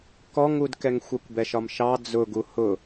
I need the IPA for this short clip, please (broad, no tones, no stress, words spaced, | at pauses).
kɔŋudkɛŋ xʷɛkʷbɛʃɒmʃɑ d͡zʊɡu hʊ